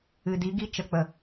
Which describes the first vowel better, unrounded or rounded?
unrounded